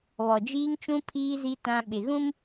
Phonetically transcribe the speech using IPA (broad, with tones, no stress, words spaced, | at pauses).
βɔ˨d͡ʒiː˦ŋt͡ʃũ˦ pʰiː˦zi˦ tã˦ ɓɪ˨ɣũ˦m